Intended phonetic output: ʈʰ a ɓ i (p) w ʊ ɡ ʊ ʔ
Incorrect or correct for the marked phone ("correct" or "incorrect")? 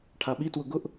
incorrect